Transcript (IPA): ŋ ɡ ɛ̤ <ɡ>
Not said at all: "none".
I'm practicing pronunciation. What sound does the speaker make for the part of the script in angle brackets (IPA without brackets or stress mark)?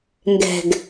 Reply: ɡ